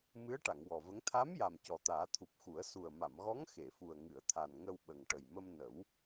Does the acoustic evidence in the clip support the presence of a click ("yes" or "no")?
no